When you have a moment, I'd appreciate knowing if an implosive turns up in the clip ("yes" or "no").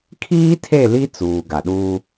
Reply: yes